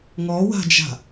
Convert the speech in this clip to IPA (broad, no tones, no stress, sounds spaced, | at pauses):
ŋ ɔ w a̤ d͡ʒ a̤